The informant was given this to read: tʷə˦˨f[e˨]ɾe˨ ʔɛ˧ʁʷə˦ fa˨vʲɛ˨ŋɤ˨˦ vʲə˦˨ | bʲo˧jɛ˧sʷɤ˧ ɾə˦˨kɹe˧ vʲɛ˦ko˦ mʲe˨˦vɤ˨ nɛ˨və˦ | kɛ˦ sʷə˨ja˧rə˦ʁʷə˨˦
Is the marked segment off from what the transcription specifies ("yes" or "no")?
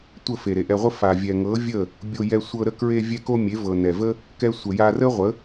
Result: no